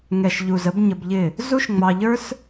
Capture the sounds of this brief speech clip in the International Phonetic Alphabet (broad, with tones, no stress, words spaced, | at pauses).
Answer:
ŋɛ˨ʃʎu˨zə˧b ɲə˧bʎɪ˦˨ | zu˦ʃ ŋ͡mɑ˧ ʎə˞˦s